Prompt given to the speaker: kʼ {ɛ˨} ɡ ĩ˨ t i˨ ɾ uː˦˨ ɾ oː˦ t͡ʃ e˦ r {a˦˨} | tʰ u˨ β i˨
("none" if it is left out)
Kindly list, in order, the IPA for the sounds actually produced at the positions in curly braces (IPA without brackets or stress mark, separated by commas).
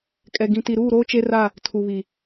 ɛ˨, a˦˨